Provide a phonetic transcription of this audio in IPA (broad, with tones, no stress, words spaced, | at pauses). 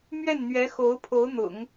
mɥɛ˥˩nn̪ɥɛ˧˥ xo˧˥ʊ̯pʰo˧˥ʊ̯ n̪ʊ̰˨˩˦ŋ